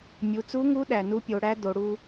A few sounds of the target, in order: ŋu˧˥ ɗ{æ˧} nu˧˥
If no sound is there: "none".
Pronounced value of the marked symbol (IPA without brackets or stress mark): æ˩